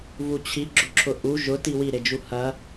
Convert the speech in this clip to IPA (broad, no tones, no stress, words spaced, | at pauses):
vut͡ɕʰi ɡ͡ǁʊǁʰʊʔu ʒʊ tiwi ɾed͡ʒuhɐ